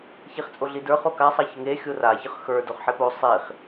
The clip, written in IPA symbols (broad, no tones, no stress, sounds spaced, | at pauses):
ç i χ t͡sʼ o ɮ i d ə˞ χ o k a sˤ ɑ ç ə ŋ e xʲ o r a ç ə χ x ə˞ d o χ ħ e p o sˤ i χ